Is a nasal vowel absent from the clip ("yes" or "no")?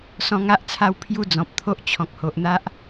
no